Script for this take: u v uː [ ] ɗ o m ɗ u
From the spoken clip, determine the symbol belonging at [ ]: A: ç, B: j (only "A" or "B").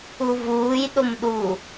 B